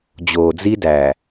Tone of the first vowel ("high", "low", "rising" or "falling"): low